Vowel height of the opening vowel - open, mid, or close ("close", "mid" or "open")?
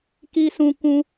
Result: close